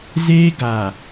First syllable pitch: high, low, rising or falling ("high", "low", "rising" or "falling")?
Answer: high